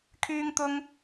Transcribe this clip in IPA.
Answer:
kʰ yː˥ ŋ t̪ ʊ˥ ŋ

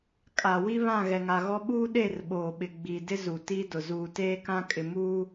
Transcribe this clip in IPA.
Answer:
kʼ a˨ w i˦ β ã˦˨ ɣ ɛ˨ ŋ a˨ ɣ ɔ˦ ɓ uː˦ ɗ e˦˨ r ɓ oː˨ ɓ ɪ˨ ɡ͡b iː˨ d ɪ˦ z u˨ t iː˦ d ʊ˨ z uː˨ t eː˦ k ã˦ kʼ ɪ˨ m uː˦

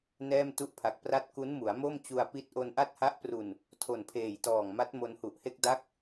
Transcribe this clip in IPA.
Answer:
n ɛː˥˩ m t u˥˩ ʔ pʰ a˨˩ k̚ p r a˥˩ t̚ k u˦˥ n m u˩˦ a̯ m o˥˩ m t͡ɕ u˧ a̯ p i˥˩ t̚ ʔ o˧ n ʔ a˥˩ t̚ h a˦˥ ʔ p r u˨˩ n | tʰ o˨˩ n pʰ eː˨˩ j t ɔː˨˩ ŋ m a˦˥ t̚ m o˧ n h u˨˩ ʔ h e˥˩ k̚ d a˦˥ k̚

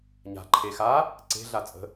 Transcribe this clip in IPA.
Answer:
ɲ a̤ ǃʰ e x a | ǀ e̤ ɮ a t͡sʼ ə̤

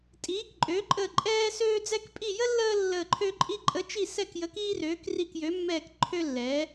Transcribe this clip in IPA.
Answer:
tʼ iː˨˥ k ǃʼ øː˨˥ ǃʼ əː˦˨ ǃʼ ɛː˥ s øː˥ d͡z ɛ˥ k pʼ i˦˨ j ə˥ lː əː˥ lː əː˦˨ ǃʰ ø˥ ǃʼ i˥ ǃʼ ə˨˥ t͡ʃ i˦˨ s ɛ˦˨ k j ə˨˥ k iː˥ r øː˨˥ k r i˦˨ k j ø˨˥ mː ɛː˦˨ k ǃʰ ø˥ lː ɛː˨˥

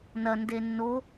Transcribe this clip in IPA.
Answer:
n ɐ n d e nː o

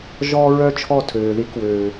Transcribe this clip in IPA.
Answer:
ʒ ɔː˦ ɹ œ˦ t͡ʃʰ ɔ˦˨ tʰ øː˨ ð i˦ k w øː˨

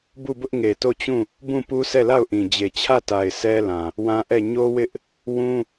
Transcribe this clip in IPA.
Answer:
b u˦˨ b ʊ˦ ʔ ŋ e˨ t o˦˨ t͡ɕ ũ˦˨ | b ũ˦˨ p u˦ sʰ ɛ˦˨ l a˦˨ ʊ̯ ʔ ĩ˨ d͡ʑ e˨ t͡ɕʰ ä˦˨ t a˨ ɪ̯ s ɛ˦ l ã˨ | w ã˦ ʔ ɛ˦˨ ɲ o˦ w ɪ˦ ʔ | w ũ˦

